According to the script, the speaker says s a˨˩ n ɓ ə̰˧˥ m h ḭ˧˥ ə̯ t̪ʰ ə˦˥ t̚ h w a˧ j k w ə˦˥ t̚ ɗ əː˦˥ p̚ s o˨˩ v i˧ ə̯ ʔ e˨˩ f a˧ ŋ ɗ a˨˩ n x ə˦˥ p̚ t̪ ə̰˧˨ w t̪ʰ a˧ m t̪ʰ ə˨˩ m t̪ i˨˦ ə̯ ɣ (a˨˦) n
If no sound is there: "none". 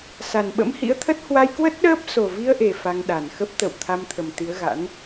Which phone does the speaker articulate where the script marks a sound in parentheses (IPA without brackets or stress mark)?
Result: a̰˧˥